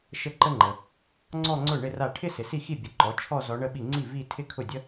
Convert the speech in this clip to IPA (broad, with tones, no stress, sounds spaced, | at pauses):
ʃ ə˥˧ ǃ ə˥ ŋ͡ǃ ə˨ | ŋ͡ǀ ɔ˥˧ ŋ͡ǀ ʊ˥˩ ɳ ɪ˥˧ r a˥˩ ʈʰ ɪ˥ s ɪ˨ s i˥˩ x i˥˩ bʲ ə˩˥ ǃ ɔ˩˥ t͡ʃʰ ɔ˥˧ z ɔ˧˥ ɳ ə˥˧ ɓ i˥˩ ŋ͡ǀ i˥˩ v i˥˧ tʰ ɪ˥˧ kʰ ʊ˥˩ dʲ ə˥